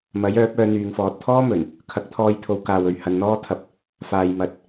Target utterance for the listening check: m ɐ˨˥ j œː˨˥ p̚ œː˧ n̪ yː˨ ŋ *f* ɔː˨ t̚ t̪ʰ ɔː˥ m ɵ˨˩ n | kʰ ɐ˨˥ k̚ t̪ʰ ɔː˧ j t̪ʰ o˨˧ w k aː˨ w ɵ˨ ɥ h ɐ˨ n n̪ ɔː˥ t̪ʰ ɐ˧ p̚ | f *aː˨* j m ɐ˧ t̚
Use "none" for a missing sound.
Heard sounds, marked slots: f, aː˨

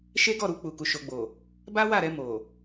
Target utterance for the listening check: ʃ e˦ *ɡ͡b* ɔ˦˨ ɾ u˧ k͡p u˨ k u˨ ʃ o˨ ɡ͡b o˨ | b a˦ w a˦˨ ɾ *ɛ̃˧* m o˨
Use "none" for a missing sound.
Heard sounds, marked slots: ɡ, ɛ˧

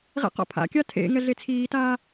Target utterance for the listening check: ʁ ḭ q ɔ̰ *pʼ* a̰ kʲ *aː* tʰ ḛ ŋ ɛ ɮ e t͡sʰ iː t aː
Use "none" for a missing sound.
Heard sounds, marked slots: pʰ, a

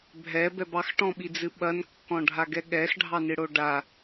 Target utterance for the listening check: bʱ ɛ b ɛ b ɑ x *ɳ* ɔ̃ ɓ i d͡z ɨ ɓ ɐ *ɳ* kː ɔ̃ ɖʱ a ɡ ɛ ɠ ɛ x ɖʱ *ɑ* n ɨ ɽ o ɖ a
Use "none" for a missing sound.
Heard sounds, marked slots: ʈ, n, ɑ

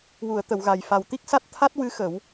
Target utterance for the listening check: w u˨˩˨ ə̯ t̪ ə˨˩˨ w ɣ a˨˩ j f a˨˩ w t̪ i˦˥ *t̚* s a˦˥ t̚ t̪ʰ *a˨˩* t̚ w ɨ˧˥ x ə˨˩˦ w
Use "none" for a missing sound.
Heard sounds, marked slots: k̚, a˦˥

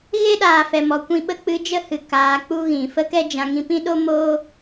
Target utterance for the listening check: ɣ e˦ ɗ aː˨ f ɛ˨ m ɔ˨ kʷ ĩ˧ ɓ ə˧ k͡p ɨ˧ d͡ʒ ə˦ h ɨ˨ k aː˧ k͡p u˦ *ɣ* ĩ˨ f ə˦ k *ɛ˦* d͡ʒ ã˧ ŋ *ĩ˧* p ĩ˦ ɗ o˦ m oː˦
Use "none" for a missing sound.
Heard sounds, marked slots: ɣ, ɛ˦, ĩ˧

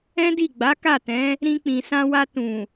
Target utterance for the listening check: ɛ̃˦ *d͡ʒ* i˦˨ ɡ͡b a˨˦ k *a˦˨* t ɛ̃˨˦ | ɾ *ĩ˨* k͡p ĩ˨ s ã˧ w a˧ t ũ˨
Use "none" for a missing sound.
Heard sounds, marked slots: d, a˦˨, ĩ˧

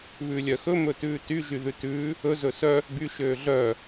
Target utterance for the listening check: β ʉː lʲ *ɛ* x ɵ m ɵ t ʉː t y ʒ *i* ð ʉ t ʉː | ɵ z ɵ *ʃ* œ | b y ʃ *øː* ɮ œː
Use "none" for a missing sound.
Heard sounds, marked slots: œ, y, s, øː

